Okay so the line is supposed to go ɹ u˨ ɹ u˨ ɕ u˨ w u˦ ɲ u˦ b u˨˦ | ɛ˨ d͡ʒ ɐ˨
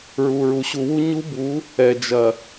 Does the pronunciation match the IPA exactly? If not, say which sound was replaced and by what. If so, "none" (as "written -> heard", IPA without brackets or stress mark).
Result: none